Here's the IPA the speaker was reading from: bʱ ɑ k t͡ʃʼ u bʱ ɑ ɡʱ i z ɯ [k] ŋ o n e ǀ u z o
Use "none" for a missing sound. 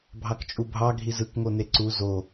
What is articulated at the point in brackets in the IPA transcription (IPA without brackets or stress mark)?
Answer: k